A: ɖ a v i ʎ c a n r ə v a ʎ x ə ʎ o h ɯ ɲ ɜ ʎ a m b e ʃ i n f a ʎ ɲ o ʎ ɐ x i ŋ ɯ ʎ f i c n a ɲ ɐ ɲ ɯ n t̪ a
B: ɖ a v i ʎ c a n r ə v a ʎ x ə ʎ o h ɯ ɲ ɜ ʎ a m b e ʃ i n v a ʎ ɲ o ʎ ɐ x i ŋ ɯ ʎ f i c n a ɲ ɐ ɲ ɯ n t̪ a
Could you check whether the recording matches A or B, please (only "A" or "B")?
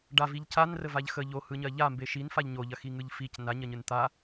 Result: A